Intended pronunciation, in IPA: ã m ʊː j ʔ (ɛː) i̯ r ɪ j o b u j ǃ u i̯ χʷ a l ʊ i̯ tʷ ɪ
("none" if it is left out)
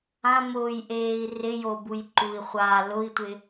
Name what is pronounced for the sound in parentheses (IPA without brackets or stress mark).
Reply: eː